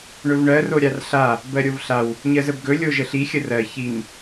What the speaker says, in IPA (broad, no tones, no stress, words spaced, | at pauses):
ɳɵvɳɜ roɾʲarɬa | bɜɾʲovɬaw | ɲɜzəbɡɵ lʲoʒəɬi xʲərɜ çin